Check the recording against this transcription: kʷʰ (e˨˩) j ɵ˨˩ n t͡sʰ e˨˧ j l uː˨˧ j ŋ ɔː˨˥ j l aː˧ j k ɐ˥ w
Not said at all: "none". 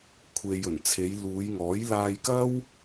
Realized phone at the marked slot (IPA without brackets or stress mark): e˨